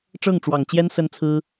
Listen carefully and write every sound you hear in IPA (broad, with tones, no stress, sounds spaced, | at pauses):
ʈ͡ʂ ɤ˥˩ ŋ ʈ͡ʂ w ɑ˨˩ ŋ t͡ɕ j ɛ˥ n s ə˥ n t͡sʰ ɹ̩˥